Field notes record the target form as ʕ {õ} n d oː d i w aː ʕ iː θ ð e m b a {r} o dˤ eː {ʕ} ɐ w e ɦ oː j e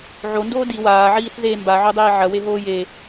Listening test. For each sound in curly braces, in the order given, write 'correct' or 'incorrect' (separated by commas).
incorrect, incorrect, correct